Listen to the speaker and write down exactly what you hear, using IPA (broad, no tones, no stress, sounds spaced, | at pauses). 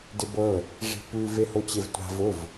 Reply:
d ɪ b ɤ | ʐ i̤ p ʉ v e h o t͡ɕ e v tʷ a̤ v ʊ v